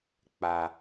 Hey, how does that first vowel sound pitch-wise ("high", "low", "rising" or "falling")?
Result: low